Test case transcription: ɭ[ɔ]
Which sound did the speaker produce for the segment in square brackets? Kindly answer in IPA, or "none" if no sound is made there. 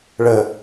ə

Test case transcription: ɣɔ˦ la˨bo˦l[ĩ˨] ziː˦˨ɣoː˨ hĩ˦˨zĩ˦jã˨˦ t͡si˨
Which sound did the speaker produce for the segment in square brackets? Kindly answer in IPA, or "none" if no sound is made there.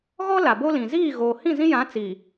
ĩ˨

